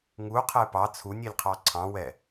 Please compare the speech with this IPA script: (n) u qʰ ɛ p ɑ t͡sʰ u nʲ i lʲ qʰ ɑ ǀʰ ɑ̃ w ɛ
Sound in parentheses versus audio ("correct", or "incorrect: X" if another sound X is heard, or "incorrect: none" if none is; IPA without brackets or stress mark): incorrect: ŋ